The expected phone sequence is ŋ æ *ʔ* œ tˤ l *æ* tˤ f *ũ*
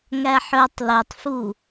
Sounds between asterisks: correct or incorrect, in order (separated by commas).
incorrect, incorrect, incorrect